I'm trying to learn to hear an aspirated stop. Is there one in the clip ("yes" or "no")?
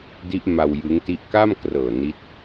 no